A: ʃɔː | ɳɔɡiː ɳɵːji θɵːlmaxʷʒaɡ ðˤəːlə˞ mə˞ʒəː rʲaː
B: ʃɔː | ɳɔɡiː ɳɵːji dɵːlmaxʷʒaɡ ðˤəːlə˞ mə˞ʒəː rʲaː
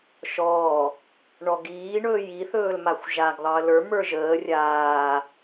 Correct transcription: A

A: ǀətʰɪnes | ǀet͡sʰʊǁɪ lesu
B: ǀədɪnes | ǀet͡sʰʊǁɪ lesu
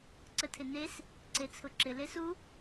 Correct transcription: A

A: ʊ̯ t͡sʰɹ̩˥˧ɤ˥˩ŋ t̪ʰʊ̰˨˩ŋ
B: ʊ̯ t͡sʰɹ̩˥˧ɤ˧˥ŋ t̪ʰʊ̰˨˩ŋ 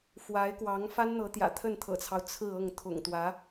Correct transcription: A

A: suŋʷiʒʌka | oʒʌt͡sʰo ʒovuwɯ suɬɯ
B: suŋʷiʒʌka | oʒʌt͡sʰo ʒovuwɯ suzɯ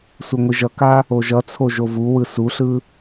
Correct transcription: A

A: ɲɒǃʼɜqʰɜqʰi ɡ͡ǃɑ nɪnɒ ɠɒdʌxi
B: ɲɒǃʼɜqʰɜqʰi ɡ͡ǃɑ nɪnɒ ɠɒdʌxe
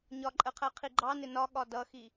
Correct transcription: A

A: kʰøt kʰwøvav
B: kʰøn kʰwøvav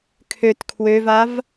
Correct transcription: A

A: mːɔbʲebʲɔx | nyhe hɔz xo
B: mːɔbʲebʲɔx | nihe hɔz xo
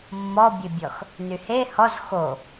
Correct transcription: A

